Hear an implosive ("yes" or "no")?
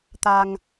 no